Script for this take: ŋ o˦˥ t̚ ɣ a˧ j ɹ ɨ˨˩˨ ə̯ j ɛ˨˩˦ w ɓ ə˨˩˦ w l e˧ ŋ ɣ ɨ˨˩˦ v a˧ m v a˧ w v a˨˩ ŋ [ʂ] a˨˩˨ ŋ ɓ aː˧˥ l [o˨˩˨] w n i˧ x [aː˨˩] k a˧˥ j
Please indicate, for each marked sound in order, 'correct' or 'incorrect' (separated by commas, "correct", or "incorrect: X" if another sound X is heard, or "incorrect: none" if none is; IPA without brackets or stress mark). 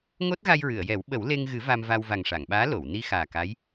correct, correct, correct